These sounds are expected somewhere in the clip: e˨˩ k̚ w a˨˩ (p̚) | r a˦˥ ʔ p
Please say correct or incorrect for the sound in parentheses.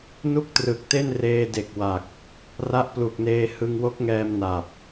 incorrect